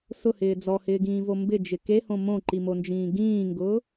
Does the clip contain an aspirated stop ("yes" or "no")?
no